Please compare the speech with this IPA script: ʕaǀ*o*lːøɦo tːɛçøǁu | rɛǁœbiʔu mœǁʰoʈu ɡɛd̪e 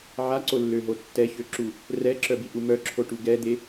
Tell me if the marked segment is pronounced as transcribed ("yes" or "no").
yes